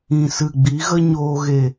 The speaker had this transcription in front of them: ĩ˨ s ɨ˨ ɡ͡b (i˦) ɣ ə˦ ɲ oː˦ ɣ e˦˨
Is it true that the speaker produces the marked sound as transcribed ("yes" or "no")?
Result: no